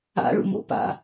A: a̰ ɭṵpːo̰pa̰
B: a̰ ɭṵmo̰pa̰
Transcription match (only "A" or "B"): B